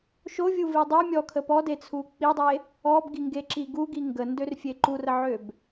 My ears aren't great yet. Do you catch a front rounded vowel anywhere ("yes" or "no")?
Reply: yes